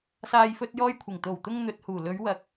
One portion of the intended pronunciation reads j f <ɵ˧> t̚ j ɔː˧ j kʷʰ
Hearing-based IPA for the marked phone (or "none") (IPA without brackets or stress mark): ɵ˧